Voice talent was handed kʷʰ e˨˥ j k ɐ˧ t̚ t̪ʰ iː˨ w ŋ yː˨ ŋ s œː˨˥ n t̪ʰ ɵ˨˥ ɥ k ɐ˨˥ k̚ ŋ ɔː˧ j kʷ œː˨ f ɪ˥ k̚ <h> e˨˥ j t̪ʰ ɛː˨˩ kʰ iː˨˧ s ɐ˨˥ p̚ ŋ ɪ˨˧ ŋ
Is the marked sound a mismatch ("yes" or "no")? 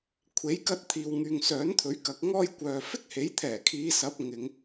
no